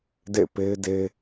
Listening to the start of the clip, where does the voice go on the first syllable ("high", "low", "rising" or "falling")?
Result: falling